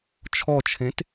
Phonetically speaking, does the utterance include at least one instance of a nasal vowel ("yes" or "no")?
yes